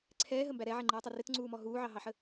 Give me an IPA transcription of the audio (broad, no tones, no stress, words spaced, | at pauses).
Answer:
ǀʰɛːɦəmbæ ɾɛʕɛŋ͡ǃiːtˤʊ rɪtŋ͡ǀuːmɔ ɦuːʕɑɦɑħə